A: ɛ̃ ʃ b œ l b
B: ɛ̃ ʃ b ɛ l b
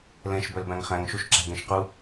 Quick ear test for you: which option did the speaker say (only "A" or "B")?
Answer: A